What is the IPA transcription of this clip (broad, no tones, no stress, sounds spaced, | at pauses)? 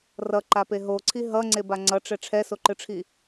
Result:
r ʌ ǃ a p e ɦ o ǀʰ i ɦ ʌ ŋ͡ǀ e b a ŋ͡ǀ ʌ ʈ͡ʂ ɛ ʈ͡ʂʰ ɛ s o ǃ ɯ ʈ͡ʂʰ i